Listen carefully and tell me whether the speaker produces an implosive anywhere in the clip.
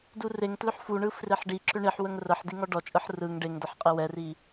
no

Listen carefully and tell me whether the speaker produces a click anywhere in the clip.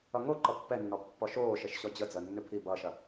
yes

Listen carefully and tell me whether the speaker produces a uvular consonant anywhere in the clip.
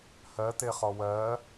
yes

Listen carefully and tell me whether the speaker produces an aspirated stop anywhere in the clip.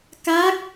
no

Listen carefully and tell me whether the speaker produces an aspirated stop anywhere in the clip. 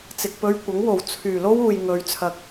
yes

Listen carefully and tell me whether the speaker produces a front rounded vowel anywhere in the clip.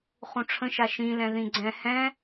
no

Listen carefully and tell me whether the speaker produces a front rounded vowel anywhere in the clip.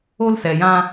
no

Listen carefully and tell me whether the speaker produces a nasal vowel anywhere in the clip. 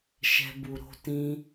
yes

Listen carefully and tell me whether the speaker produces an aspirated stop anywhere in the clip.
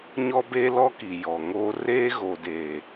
no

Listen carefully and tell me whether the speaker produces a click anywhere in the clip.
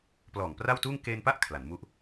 no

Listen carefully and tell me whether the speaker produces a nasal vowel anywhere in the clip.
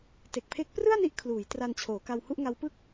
no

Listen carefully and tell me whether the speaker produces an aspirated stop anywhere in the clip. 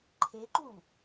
yes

